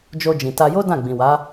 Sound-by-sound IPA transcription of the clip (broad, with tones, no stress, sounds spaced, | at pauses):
d͡ʒ o˧ d͡ʒ ĩ˨ t a˧ j o˦ d ã˦˨ ɡ͡b ĩ˨ w a˨˦